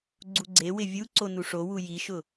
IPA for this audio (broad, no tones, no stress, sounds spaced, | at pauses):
ɡ͡ǀ u ɡ͡ǀ e w ɪ vʲ u ǀ o n u ʂ o w u j i ʃ ʊ